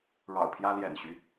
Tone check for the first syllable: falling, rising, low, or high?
low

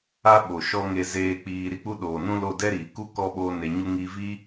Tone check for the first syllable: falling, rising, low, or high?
high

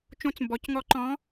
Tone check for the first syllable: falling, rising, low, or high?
rising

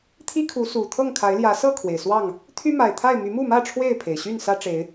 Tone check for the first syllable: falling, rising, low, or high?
high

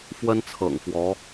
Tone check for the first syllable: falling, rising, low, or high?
high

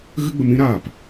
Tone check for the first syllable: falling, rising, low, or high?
high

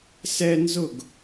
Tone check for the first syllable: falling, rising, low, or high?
high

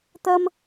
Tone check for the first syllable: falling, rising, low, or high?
high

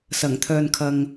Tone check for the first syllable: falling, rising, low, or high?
low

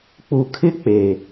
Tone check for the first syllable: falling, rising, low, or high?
low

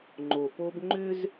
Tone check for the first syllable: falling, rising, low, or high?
low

